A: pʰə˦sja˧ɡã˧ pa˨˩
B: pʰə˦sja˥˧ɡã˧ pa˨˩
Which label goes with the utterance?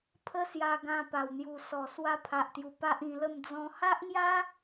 A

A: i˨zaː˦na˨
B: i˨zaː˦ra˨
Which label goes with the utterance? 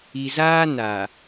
A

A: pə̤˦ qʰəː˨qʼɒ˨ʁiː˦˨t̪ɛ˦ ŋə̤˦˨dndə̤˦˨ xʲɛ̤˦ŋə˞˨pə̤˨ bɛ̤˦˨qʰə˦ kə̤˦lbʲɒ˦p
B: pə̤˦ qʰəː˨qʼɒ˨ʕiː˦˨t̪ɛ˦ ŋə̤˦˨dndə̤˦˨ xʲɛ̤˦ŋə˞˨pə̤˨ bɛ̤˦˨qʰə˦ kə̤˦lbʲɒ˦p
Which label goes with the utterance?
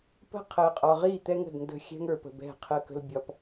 A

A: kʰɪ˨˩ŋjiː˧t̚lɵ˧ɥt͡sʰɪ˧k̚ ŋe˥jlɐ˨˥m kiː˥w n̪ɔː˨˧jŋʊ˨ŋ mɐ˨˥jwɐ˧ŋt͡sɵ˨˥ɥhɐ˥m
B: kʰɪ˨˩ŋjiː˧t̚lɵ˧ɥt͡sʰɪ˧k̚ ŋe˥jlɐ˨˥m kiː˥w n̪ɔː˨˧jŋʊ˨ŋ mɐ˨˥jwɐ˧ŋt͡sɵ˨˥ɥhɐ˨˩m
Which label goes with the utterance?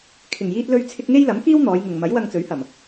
B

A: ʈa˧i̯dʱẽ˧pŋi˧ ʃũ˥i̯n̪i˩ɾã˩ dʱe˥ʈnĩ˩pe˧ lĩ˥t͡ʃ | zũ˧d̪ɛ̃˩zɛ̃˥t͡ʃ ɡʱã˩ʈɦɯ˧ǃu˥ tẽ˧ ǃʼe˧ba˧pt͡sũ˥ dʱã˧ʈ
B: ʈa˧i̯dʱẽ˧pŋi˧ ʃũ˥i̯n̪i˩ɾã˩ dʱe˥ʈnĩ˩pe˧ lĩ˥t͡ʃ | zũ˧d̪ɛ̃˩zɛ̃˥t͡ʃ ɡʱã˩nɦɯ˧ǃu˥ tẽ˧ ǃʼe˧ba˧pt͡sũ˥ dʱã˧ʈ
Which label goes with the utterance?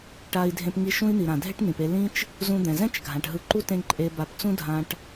A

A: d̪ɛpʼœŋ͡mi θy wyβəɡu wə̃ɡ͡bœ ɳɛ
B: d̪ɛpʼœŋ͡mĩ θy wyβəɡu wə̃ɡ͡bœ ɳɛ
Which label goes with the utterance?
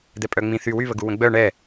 B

